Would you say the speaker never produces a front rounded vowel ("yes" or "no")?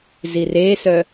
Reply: no